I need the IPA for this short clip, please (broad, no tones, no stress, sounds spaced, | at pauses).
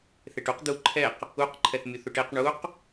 θ e ʈ u q d̪ u ǃʰ ɛ q | u q ǃʰ ɛ θ mʲ u θ u ʈ e q ɳ u q